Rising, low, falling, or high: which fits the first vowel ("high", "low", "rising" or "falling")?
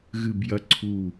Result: low